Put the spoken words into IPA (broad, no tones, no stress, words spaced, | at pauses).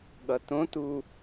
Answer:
ɠʌtõtu